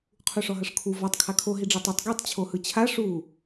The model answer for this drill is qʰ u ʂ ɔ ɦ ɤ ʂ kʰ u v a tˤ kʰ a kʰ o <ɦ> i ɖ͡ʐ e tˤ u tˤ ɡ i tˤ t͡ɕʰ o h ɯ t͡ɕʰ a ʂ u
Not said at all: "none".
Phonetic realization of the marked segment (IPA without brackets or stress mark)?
ɦ